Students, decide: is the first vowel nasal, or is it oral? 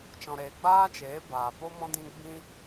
nasal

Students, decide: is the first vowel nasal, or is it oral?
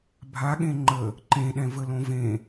oral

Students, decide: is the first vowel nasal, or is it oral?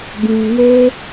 nasal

